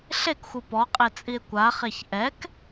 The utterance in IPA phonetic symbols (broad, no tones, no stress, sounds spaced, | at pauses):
ɬ e k xʷ ɯ p ɔ qʼ e t͡sʼ i e̯ kʷ a χ e ç ʔ ɛ k